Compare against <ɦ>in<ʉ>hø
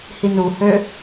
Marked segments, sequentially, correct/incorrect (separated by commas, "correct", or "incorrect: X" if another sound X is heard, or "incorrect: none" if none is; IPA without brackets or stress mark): incorrect: h, incorrect: u